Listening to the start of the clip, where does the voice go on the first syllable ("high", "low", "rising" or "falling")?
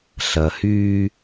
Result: low